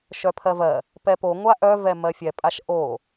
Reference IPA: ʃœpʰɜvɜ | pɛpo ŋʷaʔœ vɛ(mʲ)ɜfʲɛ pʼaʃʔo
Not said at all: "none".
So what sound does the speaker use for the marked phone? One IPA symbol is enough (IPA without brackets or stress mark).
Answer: m